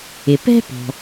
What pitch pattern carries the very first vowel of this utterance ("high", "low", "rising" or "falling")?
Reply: low